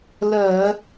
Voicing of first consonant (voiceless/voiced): voiced